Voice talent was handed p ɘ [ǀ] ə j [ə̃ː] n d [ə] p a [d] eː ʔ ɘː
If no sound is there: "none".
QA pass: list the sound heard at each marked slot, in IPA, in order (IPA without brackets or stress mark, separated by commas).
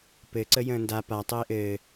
ǀ, ə̃ː, a, tˤ